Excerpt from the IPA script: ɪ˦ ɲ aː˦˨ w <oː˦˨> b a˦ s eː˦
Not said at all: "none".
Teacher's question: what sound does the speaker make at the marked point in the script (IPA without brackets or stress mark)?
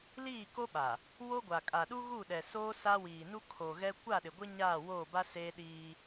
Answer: oː˦˨